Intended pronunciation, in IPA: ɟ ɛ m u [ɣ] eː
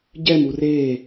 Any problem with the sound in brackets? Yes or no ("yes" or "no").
yes